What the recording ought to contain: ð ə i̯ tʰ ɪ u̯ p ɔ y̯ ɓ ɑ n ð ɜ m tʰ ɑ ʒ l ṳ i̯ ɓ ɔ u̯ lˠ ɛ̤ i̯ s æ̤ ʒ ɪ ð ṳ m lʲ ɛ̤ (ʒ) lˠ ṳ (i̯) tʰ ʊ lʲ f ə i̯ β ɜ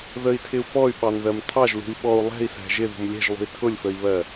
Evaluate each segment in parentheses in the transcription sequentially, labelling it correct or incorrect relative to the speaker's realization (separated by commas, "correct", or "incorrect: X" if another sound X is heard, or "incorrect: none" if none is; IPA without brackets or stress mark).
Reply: correct, correct